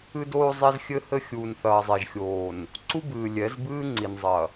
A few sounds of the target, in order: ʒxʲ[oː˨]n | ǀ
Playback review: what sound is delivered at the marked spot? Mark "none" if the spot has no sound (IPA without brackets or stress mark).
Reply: oː˨